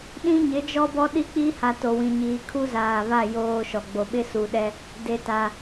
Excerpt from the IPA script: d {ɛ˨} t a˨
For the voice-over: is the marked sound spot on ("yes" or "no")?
no